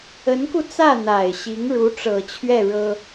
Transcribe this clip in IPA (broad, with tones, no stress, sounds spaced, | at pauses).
ə˧˥ n k u˧ t͡s ä˥˩ n̪ a˨˩ ɪ̯ ɕ i˧˥ ŋ ɻ u˧˥ ʈ͡ʂ ɤ˨˩ t͡ɕʰ ɥ ɛ˥˩ ɻ ɤ˥